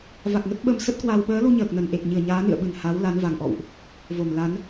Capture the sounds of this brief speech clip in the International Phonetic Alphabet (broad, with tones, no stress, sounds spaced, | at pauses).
v a˨˩ k̚ ŋ ə˦˥ t̚ ɓ ə˧ m s ə˦˥ t̚ k w a˧ w ɓ əː˨˦ l u˧ ɲ əː˨˩ k̚ n ə˨˩ n ʔ e˨˩ k̚ ɲ ɨ˧˩ ə̯ ɲ aː˨˦ n ɨ̰˧˨ ə̯ ɓ ɨ˧˩ n h a˨˦ w l a˨˦ n v a˨˩ ŋ ʔ ɔ̰˧˨ w ʔ | v o˧˩ m l a˨˦ n